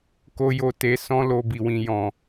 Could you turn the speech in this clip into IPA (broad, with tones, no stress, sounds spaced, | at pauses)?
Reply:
k o˨ j o˨ t e˨ s ɔ̃˧ l o˨ b i˨ w ĩ˨ j ɔ̃˨